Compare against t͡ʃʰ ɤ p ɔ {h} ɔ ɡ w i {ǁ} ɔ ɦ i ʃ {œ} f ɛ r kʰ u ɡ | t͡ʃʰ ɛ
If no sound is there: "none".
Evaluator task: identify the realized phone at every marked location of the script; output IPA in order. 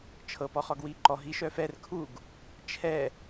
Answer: χ, ǃ, œ

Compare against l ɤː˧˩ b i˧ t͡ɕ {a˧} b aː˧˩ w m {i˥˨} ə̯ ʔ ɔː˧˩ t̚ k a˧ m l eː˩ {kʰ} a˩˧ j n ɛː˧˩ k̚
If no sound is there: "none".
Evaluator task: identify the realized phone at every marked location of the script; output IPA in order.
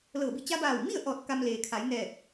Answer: a˧, i˥˨, kʰ

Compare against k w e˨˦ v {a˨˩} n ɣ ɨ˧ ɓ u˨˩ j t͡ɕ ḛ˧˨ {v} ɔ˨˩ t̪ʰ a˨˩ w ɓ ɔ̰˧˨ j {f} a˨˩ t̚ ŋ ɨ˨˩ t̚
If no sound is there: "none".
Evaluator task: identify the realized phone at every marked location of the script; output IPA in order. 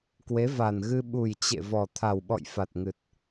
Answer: a˨˩, v, f

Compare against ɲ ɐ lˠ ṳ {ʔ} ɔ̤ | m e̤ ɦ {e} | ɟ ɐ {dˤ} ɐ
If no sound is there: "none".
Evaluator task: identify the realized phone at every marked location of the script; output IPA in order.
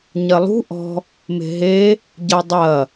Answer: ʔ, e, dˤ

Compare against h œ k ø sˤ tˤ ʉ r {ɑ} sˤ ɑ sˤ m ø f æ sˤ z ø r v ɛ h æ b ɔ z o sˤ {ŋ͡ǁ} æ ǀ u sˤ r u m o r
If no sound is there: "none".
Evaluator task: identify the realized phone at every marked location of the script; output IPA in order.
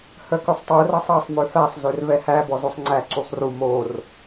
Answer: ɑ, ŋ͡ǀ

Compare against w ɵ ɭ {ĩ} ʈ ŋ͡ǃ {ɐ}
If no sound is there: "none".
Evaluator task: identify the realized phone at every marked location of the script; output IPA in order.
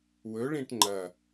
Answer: ĩ, ɐ

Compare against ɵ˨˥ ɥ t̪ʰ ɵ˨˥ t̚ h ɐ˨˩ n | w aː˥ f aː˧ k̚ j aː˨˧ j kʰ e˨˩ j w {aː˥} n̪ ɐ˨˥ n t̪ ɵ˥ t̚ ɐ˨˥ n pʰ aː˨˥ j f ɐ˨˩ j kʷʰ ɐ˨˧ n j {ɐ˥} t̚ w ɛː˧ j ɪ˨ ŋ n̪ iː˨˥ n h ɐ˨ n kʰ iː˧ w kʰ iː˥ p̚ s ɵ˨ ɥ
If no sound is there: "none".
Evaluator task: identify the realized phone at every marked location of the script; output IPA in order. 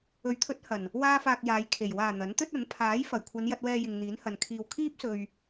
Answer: aː˨˩, ɐ˧

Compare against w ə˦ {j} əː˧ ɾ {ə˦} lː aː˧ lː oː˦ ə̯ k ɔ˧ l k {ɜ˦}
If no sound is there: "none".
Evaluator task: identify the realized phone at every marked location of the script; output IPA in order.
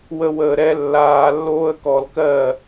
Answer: w, ɛ˦, ɜ˦˨

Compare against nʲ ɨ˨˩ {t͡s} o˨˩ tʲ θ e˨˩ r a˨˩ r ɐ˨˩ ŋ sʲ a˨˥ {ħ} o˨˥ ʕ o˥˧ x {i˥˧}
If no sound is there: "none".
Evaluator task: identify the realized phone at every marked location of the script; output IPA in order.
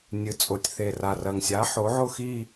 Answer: t͡sʼ, ħ, i˥˧

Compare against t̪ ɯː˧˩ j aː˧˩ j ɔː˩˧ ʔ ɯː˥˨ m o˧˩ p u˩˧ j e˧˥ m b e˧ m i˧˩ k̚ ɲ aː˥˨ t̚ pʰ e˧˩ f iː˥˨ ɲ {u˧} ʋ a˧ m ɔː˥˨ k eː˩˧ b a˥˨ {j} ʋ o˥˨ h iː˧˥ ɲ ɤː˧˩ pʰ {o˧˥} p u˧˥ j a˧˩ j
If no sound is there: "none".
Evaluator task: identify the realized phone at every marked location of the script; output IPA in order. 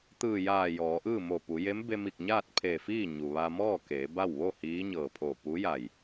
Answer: u˩, w, o˧˩

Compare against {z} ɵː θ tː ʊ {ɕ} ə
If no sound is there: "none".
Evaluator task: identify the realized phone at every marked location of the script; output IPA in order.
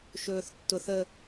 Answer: ʃ, θ

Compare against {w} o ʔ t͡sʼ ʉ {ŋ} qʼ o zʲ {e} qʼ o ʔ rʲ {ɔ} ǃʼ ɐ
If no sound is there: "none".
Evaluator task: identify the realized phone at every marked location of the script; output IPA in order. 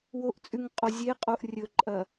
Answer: w, ŋ, e, ɵ

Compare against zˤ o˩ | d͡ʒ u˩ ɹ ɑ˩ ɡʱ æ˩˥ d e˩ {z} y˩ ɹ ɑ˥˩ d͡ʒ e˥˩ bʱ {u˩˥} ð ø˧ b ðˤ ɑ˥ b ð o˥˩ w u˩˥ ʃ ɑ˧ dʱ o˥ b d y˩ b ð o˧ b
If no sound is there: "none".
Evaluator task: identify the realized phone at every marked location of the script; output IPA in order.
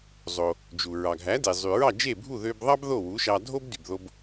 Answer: zˤ, u˥˩

